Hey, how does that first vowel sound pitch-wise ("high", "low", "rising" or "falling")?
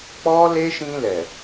high